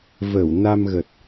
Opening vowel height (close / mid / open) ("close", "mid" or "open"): mid